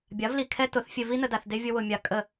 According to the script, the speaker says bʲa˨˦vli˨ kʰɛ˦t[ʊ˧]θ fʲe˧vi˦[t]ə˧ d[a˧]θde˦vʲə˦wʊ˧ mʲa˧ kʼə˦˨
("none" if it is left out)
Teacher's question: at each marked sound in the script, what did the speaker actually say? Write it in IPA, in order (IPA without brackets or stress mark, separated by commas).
ʊ˨˦, n, a˧